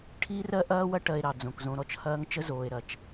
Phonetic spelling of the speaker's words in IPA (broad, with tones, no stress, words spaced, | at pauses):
ʈʰiː˦rɜ˦ ʔɐː˦wɐ˦ ʈɜ˨e̯ ɾɑ˨d͡zõ˨k zõ˨ɾɔ˨t͡ʃ hɐː˦ŋ t͡ʃə˦zoː˨e̯ɾɐ˨t͡ʃ